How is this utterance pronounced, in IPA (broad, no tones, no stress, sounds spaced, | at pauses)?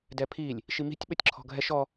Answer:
d ɛ pʰ i lʲ | ʃ i m i̤ tʲ ɓ ɘ tʲ ǁʰ ɔ̤ ɡʱ ɛ ʃ ɔ